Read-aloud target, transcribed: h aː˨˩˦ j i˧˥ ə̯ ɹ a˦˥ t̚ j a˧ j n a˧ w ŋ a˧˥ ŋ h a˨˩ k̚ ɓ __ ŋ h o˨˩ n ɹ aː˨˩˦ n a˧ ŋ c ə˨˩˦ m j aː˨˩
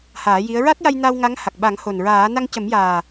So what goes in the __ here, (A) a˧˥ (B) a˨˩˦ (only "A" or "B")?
B